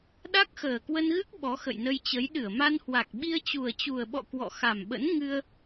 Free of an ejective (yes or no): yes